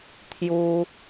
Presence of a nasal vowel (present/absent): absent